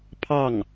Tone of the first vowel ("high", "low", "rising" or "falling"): falling